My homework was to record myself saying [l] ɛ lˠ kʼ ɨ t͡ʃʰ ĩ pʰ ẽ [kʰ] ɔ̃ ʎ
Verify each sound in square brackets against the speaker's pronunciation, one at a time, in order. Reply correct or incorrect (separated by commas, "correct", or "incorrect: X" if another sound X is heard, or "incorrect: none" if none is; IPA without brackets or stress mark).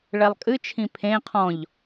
incorrect: ɭ, incorrect: qʰ